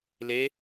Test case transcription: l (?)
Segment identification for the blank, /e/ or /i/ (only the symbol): e